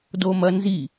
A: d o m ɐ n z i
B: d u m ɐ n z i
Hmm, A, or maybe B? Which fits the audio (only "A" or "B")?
A